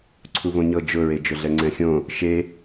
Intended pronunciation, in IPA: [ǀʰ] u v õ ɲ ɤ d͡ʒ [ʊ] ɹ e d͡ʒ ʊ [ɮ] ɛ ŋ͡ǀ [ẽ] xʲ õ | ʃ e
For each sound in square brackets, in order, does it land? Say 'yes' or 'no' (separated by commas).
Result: yes, yes, yes, no